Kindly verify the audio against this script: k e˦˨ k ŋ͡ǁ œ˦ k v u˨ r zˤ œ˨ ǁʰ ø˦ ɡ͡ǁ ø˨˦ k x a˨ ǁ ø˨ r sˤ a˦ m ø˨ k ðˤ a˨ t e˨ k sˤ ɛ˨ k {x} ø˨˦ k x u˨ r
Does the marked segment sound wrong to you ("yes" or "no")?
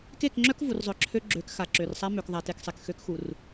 no